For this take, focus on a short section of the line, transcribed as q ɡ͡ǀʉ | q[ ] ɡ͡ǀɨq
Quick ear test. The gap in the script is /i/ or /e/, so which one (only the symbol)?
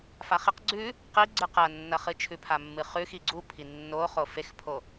i